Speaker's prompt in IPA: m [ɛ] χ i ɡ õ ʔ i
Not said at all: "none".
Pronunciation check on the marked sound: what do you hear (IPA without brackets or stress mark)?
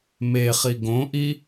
e